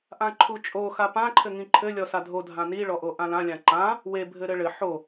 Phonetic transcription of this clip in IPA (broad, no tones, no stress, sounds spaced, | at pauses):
ʔ ã ǃʰ u t͡ʃʼ o x a p ã ǃʰ ɘ ŋ ĩ ǃʰ ɘ lʲ ɔ s a dʱ o dʱ ã n i ɭ ɔ ʔ o ʔ ã l ã lʲ ã ǃ ã | w e bʱ ɘ ɾ ɘ ɭ ɘ ħ o